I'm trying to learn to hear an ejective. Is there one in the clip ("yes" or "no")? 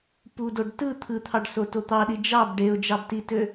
no